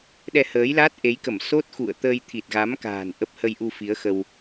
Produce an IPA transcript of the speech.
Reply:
ɗɛ˧həː˨˦jla˦˥t̚ ʔe˨˦jkə˧˩m so˦˥t̚xṵ˧˨ə̯t̪əː˧j t̪ʰi˨˩t̚ɣa˨˦mka̤ː˨˩n ʔə˦˥p̚ hə˧jʔu˧ fi˨˦ə̯xə˧w

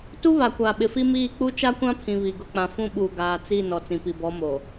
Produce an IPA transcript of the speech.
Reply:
tu˦βa˨kʷaː˨ ɓɪ˨fi˦miː˦˨ k͡pu˦ t͡ʃa˦kʷã˦pʰĩ˨ βi˨ɡʊ˦˨ k͡pã˨fũ˦ɓuː˨ ɡaː˨t͡si˦˨ nɔ˨t͡sĩ˨pi˨ bɔ˨˦moː˨

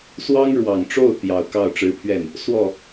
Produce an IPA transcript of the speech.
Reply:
swɑ˥ŋɻwɑ˨˩ŋʈ͡ʂo˥˩ʊ̯ t̪jɑ˨˩ʊ̯ kɑ˥˩ʊ̯ʈ͡ʂɻ̩˧˥pʰɥɛ˥˩n | swɔ˥˩

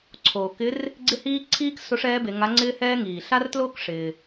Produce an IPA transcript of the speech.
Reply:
ǀʰoː˩kɪ˧˥r | ɡ͡ǀɪ˥hiː˥ ǀʰiː˥k so˧˥ʂɛː˧˥be˩˧ ŋa˧˥ŋ͡ǀɪː˥hɛː˥ ŋiː˩ɬa˥rtloː˥k ʂɪː˩

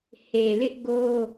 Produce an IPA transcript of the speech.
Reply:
he˨lɪ˦ʔ ɡo˦

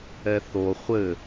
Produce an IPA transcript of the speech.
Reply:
ɛθo χʷɘ

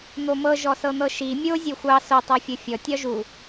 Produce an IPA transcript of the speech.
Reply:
n̪omɤ ʒɔsɤn̪ɤʃi mʲo zʲoxʷɑ so tˤofʲofʲɔ tʲɒʒu

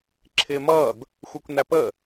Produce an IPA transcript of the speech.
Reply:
ǁʰɪːmʌːd | xʷə˞kʷnæpə

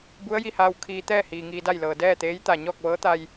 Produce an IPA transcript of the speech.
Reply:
bu˧˥ə̯ ji˧haː˧w kʰiː˧ t̪ɛː˥˨hiː˩ ŋiː˧da˥˨jlɤː˩ dɛː˥˨t̪eː˧˥j t̪a˧˩ ɲɔː˥˨k̚ʋɤː˧˥t̪a˧j

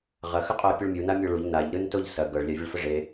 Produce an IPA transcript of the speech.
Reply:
ʁɐxəqʼoɐ̯ pʲuɭmʲuna mʲoɭuʎ naʎɾɯn toʎsɐ ɡɤɭlʲavʲəɭ fəʐe

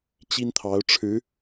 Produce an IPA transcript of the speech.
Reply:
t͡ɕi˥nt̪ʰɑ˧˥ʊ̯ʈ͡ʂʰɻ̩˧˥

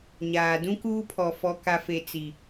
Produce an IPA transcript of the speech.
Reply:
ɲaː˨dũ˦kuː˦pʰɔ˨ fɔ˨ ka˨fe˨ t͡si˨

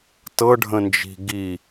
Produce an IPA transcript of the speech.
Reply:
tɤɖʱə̃nd͡ʒi̤ ɡi

